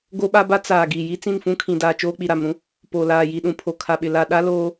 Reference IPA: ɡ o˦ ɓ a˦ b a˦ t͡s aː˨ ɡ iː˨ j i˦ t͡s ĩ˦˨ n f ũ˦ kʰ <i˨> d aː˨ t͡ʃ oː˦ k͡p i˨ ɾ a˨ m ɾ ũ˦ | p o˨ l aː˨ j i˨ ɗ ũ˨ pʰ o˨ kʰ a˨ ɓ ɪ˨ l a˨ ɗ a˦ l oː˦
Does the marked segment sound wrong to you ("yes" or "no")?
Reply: yes